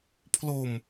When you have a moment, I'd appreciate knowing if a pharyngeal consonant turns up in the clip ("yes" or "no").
no